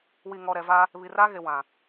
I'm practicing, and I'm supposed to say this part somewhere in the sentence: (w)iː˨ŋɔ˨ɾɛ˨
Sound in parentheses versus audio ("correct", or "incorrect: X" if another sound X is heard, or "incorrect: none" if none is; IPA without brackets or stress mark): correct